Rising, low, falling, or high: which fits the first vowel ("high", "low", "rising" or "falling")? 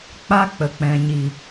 high